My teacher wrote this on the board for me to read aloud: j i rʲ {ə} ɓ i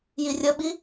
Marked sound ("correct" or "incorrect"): correct